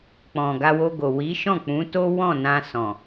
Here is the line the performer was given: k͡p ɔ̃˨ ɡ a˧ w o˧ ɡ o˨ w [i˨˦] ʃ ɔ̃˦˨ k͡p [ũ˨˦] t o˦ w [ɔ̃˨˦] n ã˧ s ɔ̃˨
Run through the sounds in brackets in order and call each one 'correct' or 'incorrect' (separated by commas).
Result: correct, correct, incorrect